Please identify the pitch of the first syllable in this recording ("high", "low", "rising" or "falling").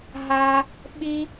high